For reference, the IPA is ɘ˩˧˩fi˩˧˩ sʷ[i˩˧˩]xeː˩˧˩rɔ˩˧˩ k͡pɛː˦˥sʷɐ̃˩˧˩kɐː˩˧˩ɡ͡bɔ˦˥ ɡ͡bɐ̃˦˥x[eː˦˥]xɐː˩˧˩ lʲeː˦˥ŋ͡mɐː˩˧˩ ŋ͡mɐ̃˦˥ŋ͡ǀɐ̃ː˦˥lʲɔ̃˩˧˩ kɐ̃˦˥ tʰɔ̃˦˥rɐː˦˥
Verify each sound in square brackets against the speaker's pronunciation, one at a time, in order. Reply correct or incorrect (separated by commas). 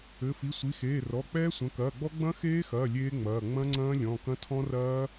correct, correct